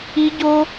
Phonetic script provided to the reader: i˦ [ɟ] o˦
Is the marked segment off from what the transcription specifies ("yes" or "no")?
no